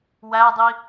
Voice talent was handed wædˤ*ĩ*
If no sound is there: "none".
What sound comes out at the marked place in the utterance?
i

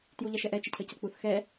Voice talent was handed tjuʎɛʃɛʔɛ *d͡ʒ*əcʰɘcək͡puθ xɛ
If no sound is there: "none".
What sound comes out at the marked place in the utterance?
t͡ʃ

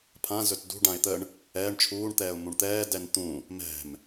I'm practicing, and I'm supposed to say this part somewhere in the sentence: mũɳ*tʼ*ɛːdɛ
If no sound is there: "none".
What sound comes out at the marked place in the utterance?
t̪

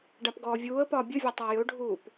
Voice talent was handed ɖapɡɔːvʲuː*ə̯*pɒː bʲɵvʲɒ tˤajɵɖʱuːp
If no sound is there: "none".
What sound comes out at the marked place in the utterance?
ə̯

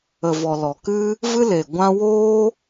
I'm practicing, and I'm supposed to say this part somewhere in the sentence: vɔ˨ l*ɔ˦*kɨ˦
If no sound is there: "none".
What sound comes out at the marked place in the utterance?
ɔ˨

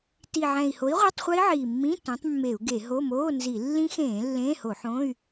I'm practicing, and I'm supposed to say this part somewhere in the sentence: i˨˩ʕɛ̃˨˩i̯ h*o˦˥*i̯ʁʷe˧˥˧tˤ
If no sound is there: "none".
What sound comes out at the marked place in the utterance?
o˨˥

